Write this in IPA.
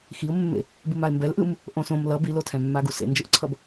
x i ʊ̯ mː ḛ | b ɯ m a ɪ̯ m b ɛ l ʔ ɯ m | ʔ õ s õ m l ʌ b i l o tʰ ɛ̃ mː a ɡ u s ḛ n d͡ʒ ɯ ʔ ǀʰ ʌ b

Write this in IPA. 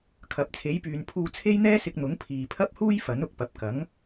kʰ ɐ˨˥ p̚ t͡sʰ e˨˥ j p yː˨˧ n pʰ uː˧ t͡sʰ e˥ j n̪ ɛː˥ s ɪ˧ k̚ n̪ ʊ˨˥ ŋ pʰ iː˨ pʰ ɐ˥ p̚ h uː˥ j f ɐ˨˥ n ʊ˨ k̚ p ɐ˨˥ p̚ k ɐ˨˥ ŋ

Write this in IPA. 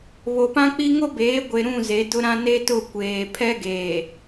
β o˨ p ã˦ k͡p i˦ ŋ o˦ b eː˨˦ ɡʷ e˨ ɾ ũ˦˨ z e˨˦ d ʊ˦ ɾ ã˦ n e˦ t ʊ˦˨ kʷ eː˨ pʰ ɛ˦ ɡ eː˨

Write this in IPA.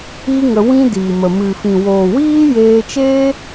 iː˦ ŋ ə˧ w ĩ˦ d iː˨ m ə˨ m ɨ˨ f ĩ˨ w oː˨ w iː˦ j eː˧ t͡ʃ eː˦

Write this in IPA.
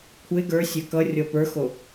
kʷʰ e ɡ ə˞ sʲ œ k ʌ rʲ ɔ p ə˞ x o

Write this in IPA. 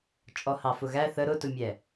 t͡ʃʼ ɔ h ɑ f ʊ ɣ æ θ ə ɾ ʊ t ʊ mʲ ɛ

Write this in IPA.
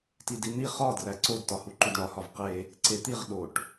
t i d i n̪ i χ ɒ d r æ ǀ o d t ɒ h u ǃ u d ɳ ɒ h ɒ v q e | ǀ e t̪ i ʁ ɗ o ʈ

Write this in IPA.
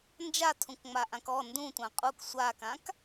n d͡ʒ a tʰ ũ k ŋ͡m a ʔ ã k ɔ n d ũ tʷ ã qʼ u k sʷ a k ã k

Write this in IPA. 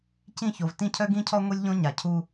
c ĩ˦˨ ç o˨ v t ĩ˦ cʰ œ˦ ɡ ĩ˦ cʰ ɔ˦ ŋʷ i˦ lʲ ʎ õ˦ ɲ a˨ cʰ u˦

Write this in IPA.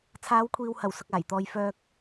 t͡sʰ aː˨˧ w kʷʰ iː˨ w h ɐ˨˩ w s ʊ˨ k̚ aː˨˩ j t̪ ɔː˨ j f œː˧ k̚

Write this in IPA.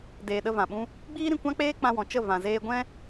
d eː˨ ɗ ə˧ v ã˨ ɓ ũ˦ | ɡ͡b iː˦ ɾ ĩ˧ kʷ ã˦ k͡p eː˦ k͡p ã˧ w ɔ̃˨ t͡ʃ ə˦˨ v ã˨ z eː˧ ɡʷ ɛ̃˦

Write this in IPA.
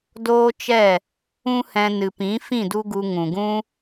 d oː˦ t͡ʃ ɛ˦˨ | ũ˦ h ɛ̃˧ n ɨ˨ p ĩ˨˦ f ĩ˦˨ d u˦ ɡ u˧ ŋ ũ˨ ɡ ũ˦

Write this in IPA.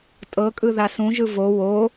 tʼ ɤ kʼ ɯ ð a s ũ ʒ ɯ v o w o

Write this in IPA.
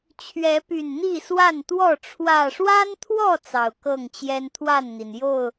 t͡ɕʰ ɥ ɛ˨˦ p y˨˩ n n̪ i˥˨ s w a˥˨ n t̪ w ɔ˥˨ ʈ͡ʂʰ w ä˨˩ ʂ w a˦ n t̪ʰ w ɔ˥˨ t͡s ɑ˨˩ ʊ̯ k ɤ˥˨ ŋ t͡ɕ j ɛ˦ n t̪ʰ w a˥˨ n n̪ i˩ n j o˥˨ ʊ̯

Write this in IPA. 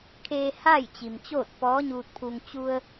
kʰ eː˧ h aː˥˨ j t͡ɕ i˩ m t͡ɕ oː˥˨ t̚ p ɔː˧˥ ɲ uː˧ t̚ pʰ u˧ ŋ t͡ɕ u˧ ə̯

